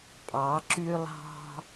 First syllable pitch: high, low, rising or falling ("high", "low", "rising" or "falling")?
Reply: rising